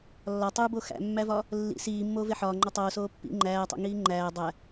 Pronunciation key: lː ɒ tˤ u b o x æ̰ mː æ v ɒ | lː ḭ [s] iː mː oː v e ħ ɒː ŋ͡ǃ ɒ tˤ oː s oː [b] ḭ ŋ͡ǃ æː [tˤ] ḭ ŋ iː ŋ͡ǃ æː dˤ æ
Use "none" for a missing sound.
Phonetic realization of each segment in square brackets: s, pː, tˤ

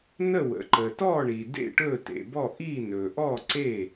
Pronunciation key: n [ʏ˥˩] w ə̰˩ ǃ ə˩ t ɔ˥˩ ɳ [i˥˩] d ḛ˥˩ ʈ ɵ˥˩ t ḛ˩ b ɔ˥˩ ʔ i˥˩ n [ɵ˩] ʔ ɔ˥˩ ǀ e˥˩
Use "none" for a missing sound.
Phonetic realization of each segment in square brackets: ə˥˩, i˩, ɵ˩

